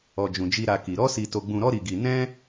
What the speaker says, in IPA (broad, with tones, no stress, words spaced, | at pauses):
ɔ˧d͡ʒũ˧d͡ʒi˦ ɾa˧ ki˧ ɾɔ˦si˧ to˧ɡ͡bũ˧ɾɔ˦ ɾi˦ɡi˦ nɛ̃˦